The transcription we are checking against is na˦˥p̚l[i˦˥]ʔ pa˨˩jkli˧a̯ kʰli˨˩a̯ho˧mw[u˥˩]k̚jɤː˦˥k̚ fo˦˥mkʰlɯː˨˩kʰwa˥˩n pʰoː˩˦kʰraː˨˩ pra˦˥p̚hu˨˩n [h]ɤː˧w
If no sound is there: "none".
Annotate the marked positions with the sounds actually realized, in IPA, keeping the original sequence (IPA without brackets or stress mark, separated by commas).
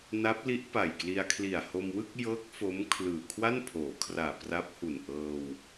i˦˥, ɯ˥˩, ʔ